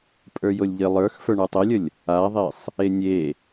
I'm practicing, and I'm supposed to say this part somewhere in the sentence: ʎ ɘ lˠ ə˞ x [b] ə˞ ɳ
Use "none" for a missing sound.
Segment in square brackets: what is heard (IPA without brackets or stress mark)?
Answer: f